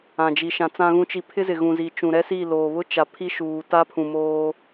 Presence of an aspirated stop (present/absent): present